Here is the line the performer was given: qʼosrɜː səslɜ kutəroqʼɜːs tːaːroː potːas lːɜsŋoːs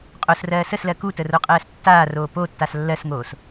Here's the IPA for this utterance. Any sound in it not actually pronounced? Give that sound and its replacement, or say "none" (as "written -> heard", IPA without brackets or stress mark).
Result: none